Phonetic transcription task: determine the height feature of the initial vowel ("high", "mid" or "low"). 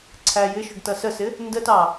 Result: low